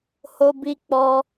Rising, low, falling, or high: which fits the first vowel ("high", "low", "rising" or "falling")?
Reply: high